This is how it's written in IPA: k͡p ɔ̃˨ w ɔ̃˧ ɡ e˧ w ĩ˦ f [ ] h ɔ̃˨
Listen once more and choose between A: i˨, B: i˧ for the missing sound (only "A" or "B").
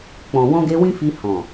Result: B